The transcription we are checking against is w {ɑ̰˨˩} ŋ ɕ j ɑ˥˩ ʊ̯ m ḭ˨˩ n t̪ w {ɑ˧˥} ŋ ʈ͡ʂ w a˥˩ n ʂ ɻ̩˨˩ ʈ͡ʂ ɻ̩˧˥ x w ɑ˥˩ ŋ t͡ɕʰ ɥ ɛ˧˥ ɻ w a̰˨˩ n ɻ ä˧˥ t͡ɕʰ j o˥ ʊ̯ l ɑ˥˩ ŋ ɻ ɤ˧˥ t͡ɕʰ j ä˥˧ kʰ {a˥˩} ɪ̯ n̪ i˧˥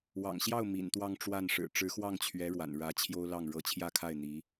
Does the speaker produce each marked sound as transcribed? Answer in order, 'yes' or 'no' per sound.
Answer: yes, no, yes

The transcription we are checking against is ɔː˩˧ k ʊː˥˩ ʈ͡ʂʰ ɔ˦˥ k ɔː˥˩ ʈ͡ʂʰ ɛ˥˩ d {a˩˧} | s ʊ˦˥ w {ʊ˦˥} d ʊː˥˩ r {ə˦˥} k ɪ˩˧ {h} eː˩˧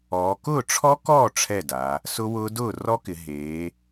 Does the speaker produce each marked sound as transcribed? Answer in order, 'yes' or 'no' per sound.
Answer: yes, no, no, no

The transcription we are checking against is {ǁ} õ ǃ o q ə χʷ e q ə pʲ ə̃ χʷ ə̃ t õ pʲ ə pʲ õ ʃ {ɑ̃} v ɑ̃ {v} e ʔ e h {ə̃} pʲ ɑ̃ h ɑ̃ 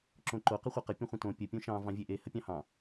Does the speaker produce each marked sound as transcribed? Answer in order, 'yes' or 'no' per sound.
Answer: yes, yes, no, no

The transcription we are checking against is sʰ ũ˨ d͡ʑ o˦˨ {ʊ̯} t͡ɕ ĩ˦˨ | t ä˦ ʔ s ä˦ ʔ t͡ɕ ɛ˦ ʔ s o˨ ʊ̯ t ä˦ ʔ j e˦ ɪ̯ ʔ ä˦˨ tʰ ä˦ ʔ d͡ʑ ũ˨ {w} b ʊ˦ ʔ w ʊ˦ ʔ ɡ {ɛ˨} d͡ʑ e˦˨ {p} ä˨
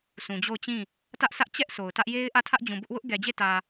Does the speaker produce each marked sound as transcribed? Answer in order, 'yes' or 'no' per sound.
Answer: yes, no, yes, no

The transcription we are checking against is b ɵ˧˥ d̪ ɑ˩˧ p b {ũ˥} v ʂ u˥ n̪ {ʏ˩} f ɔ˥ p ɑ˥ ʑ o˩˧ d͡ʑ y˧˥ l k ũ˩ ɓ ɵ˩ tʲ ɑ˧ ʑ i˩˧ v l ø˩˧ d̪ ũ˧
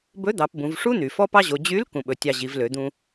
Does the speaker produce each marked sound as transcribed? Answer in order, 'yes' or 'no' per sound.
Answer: no, no

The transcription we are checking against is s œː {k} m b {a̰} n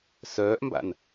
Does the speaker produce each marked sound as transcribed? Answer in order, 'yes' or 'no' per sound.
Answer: no, yes

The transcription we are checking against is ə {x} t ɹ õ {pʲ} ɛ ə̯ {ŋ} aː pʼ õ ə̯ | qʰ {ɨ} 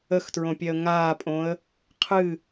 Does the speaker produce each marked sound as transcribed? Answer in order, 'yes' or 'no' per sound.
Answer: yes, yes, yes, yes

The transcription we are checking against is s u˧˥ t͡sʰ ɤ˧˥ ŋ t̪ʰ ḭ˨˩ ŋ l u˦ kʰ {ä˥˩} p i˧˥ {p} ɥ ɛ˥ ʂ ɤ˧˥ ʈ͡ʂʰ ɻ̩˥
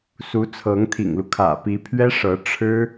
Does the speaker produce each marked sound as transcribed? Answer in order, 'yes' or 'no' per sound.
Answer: no, no

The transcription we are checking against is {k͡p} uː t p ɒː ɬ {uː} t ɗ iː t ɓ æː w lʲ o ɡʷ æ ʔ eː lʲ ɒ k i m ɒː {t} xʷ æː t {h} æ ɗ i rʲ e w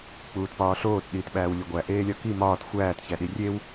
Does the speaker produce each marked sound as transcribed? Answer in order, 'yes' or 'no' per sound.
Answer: yes, no, yes, no

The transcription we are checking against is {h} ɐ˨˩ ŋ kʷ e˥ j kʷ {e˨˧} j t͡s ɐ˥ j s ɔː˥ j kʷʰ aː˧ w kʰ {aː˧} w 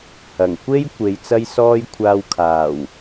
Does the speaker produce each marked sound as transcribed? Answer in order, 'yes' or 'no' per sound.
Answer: yes, no, no

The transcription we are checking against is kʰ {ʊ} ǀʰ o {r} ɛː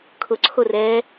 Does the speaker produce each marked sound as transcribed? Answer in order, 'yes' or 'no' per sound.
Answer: yes, yes

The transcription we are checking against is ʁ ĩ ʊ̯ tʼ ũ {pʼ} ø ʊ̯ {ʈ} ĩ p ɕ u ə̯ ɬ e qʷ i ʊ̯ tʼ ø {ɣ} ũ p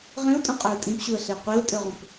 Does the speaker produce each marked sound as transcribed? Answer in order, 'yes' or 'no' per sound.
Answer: no, no, no

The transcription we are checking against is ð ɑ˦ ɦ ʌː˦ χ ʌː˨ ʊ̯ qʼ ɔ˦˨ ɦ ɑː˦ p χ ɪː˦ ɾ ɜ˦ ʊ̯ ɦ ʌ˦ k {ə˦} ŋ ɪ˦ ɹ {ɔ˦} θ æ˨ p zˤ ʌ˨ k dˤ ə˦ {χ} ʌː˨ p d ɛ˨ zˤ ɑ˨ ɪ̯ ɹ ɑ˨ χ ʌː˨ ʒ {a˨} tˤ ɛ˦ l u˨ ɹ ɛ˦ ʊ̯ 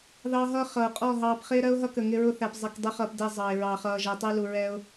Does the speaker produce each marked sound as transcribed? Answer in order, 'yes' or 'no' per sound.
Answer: no, no, yes, no

